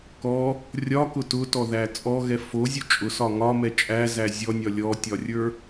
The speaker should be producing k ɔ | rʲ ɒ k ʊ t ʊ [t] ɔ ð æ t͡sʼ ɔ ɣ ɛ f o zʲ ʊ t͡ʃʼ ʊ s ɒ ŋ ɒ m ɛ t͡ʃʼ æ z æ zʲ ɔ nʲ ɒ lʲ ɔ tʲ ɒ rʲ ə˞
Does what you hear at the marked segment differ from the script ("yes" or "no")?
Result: no